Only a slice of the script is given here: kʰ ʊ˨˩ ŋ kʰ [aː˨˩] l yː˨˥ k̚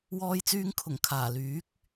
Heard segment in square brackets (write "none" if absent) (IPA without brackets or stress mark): aː˨˩